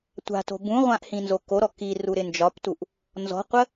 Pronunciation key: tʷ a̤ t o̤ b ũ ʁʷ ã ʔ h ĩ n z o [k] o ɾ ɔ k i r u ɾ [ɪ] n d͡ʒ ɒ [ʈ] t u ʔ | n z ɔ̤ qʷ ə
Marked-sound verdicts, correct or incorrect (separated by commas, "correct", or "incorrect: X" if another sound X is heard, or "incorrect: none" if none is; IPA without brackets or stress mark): correct, correct, incorrect: p